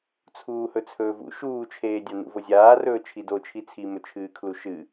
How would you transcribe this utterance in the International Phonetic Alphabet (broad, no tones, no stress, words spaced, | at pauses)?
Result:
t͡sʰuːhɵt͡sʰɵːvṵ ʃuːt͡ʃʰeːdʲa nṵvozʲaːrɵː t͡ʃʰidot͡ʃʰi t͡sʰimɵt͡ʃʰɨːkʰlu ʃɨ